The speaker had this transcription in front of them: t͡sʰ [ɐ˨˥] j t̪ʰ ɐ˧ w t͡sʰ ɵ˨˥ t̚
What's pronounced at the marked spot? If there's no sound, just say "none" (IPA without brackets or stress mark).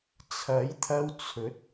ɐ˨˥